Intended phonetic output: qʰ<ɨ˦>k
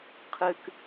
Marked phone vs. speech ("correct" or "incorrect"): incorrect